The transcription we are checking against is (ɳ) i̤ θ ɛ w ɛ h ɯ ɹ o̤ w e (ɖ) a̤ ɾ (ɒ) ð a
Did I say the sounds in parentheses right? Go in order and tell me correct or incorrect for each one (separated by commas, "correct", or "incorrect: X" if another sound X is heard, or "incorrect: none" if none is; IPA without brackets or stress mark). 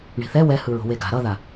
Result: correct, incorrect: ɡ, incorrect: ʌ